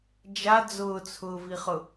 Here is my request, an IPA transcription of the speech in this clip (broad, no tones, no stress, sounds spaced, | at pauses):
d͡ʒ a d͡z ʊː t͡sʰ ʊː v i χ ʊ